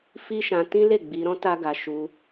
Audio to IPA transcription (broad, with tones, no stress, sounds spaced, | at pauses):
f i˦ ʃ ã˧ t ĩ˦ l e˦˨ ɡ͡b i˧ ɾ ɔ̃˦ t a˦ ɡ a˧ ʃ u˧